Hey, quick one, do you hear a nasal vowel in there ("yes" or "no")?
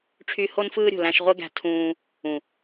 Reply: yes